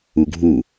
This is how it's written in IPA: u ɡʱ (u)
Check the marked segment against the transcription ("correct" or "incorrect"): correct